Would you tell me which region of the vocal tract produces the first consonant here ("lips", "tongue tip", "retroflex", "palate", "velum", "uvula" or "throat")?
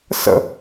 tongue tip